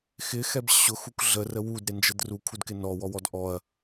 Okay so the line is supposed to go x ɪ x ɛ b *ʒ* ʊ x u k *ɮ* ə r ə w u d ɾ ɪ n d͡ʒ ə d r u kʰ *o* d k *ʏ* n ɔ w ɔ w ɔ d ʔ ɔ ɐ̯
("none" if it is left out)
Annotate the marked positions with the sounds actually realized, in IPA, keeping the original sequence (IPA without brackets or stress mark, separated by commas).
ɕ, ɮ, u, ɪ